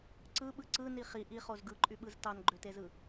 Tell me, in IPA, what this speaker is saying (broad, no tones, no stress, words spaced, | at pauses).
ǀɯɓɯ ǀɯni χi ʔiχoz ɡɯǃʼyɓɯz tɑnɡ͡ǃøtezɯ